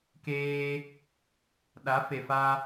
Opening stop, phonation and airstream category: plain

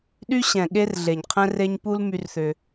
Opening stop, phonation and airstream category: implosive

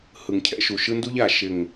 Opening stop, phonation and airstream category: aspirated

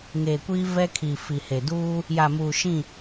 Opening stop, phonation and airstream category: plain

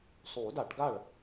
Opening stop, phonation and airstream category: plain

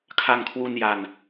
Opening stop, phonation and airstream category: aspirated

